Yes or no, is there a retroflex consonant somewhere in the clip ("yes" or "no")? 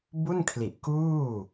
no